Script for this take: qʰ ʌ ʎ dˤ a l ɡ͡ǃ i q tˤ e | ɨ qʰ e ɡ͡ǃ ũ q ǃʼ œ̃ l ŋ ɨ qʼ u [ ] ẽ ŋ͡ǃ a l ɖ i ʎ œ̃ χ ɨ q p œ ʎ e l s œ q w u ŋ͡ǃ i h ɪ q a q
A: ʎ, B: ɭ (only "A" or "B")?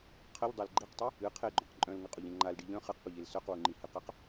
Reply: A